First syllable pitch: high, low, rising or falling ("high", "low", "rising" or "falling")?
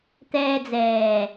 high